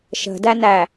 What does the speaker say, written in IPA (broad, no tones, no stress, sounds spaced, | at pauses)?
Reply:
ʃ ə̤ d æ n æ